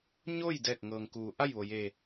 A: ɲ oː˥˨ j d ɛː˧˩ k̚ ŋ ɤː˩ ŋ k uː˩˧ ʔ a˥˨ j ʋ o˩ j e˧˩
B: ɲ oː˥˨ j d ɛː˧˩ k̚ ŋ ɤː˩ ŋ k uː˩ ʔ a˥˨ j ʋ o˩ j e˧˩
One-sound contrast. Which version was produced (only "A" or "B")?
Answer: A